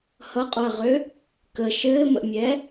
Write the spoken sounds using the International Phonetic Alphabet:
hʌqʼoɐ̯ʁø | kə ʃɘːmə̰mʲɛ

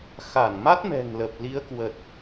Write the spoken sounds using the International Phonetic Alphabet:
xa˧˩nma˦˥t̚mɛ̤˨˩ŋ lə˨˩p̚ li˨˦ə̯ kwə˨˩t̚

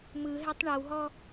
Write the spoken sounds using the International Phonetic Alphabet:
mɯɦɛtˤ ɳɤwɦɔ

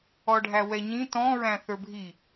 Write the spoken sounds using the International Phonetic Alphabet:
ɔɖʱæwɛɲĩ tɔ̃ɹæ̃ θə˞bʱi

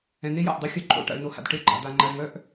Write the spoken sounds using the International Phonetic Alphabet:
ɛ̃˨n̪e˦ja̰˨ʔdˤy˦˨ xʲœ˦ǃʼo̰˨ ʈa̰˨ɭno˨ha̰˨d ʈe˦ɡ͡ǃa̰˨ d̪a˨ŋ͡ǃa˨ɭŋœ˦ʔ

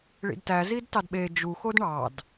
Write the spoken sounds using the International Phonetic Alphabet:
ɭḭdtæ zidtɑdɓe d͡ʒu xodɳɑd

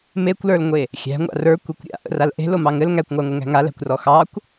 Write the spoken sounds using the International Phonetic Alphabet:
mekʷlə˞lŋʷe | xʲæ̤ŋʷa̰ rə˞kʷikʷ ɾʲa̰ʔə̰ral ʔe̤lomɑ ŋɘl ŋækʷŋʷæŋʷɘŋæ̤ ŋalæ̤kʷrɔ xɑkʷ

